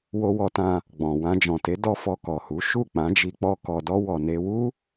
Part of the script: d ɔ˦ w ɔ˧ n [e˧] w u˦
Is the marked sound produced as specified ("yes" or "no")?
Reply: no